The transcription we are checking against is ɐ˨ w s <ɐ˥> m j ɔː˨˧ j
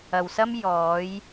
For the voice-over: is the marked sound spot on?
yes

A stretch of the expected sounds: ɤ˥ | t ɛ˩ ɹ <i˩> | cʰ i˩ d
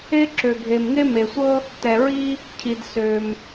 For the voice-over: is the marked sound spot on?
no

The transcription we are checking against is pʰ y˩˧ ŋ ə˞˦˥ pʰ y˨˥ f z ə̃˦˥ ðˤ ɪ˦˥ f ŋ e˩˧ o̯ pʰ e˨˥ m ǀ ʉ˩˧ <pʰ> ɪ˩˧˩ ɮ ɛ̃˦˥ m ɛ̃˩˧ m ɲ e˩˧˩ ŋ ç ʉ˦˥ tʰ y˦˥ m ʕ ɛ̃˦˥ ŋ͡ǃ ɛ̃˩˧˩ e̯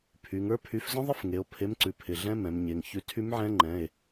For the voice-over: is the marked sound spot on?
yes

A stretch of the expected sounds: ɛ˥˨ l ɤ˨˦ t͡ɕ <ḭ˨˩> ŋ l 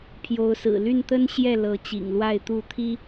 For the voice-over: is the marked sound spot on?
yes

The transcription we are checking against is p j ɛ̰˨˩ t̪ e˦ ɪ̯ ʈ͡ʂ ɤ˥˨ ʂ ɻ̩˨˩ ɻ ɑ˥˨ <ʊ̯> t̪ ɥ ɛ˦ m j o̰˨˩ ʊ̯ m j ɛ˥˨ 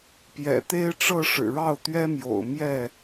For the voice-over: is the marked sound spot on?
yes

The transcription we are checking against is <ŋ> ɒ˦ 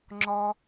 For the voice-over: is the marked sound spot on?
no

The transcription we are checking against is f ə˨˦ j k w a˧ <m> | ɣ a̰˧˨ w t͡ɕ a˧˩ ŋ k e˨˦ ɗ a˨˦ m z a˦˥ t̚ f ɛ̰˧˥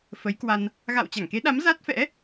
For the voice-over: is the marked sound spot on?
no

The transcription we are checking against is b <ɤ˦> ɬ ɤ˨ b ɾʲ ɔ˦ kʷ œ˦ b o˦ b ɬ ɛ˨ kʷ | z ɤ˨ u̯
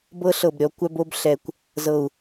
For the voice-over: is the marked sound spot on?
yes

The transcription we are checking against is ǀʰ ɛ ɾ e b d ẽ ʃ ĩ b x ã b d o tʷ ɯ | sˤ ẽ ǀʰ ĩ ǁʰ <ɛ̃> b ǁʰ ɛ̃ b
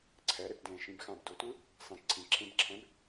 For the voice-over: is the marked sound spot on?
no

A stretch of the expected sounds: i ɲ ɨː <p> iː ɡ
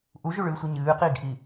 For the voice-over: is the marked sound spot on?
no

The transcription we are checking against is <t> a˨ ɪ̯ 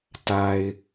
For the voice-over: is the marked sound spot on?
yes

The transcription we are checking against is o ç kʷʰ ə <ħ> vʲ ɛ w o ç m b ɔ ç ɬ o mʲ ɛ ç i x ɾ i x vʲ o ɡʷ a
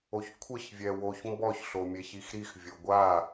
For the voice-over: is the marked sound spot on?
no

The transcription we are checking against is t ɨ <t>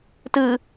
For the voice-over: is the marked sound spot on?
no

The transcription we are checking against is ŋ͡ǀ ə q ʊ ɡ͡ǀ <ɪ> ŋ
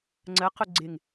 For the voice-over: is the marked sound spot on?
yes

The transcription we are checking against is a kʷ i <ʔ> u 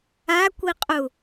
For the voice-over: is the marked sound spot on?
no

